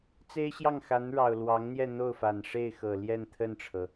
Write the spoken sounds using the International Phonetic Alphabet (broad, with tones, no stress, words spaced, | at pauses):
t͡se˥ɪ̯ɕjɑ˥˩ŋxa˧˥nɻɑ˨˩ʊ̯ lwɑ˧˥ŋn̪jɛ˥˧ n̪o˥˩ʊ̯fa˨˩nʂe˥˩ɪ̯xɤ˨˩ ljɛ˥˧nt̪ʰə˥˩nʈ͡ʂʰɤ˩